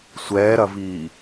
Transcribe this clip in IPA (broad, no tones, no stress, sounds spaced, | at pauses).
sʷ ɛː ɾ ɐ v iː